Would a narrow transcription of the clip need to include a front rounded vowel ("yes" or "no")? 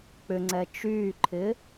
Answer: yes